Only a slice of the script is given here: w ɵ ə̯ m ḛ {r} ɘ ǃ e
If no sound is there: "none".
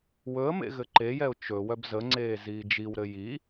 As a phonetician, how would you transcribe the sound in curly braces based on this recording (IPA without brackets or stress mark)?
ɣ